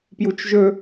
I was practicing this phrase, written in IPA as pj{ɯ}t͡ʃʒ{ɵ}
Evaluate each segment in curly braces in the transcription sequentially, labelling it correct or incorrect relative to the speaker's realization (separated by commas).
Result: incorrect, correct